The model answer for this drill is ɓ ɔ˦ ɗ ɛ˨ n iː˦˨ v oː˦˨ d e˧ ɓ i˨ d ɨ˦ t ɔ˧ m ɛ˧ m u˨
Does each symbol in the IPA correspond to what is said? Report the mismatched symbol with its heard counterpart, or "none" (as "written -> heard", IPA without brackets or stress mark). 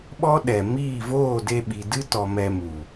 n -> m